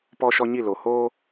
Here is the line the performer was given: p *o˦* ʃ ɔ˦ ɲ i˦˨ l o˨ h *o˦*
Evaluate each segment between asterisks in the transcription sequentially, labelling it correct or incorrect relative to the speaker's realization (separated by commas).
incorrect, incorrect